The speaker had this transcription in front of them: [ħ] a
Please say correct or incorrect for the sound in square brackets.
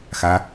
incorrect